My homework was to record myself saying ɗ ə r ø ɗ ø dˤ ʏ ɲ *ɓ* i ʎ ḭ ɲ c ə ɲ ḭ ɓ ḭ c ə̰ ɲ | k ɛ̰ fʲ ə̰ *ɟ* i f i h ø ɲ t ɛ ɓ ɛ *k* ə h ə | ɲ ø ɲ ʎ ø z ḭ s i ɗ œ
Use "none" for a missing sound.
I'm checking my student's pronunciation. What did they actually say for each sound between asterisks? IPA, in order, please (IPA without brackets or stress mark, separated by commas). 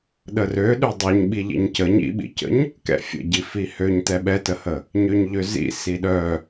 ɓ, ɟ, t